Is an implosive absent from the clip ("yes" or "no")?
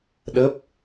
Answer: no